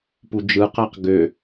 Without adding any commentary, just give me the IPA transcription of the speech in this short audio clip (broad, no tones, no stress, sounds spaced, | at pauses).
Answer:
p u d͡ʒ ɯ q æ q ɡ ø